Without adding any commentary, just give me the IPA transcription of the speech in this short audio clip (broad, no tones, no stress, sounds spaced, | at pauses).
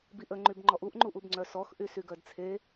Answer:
b i ʔ ə ŋ͡ǃ y b ŋ͡ǃ ɔ ʔ u ʔ ŋ͡ǃ u ʔ u b ŋ͡ǀ œ s ɔ x ʔ y s y ɡ œ d t͡sʰ e